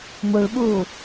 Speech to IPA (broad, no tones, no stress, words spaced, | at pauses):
muɭɓuː